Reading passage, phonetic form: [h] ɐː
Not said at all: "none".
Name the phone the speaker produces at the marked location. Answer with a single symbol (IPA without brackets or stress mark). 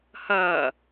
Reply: h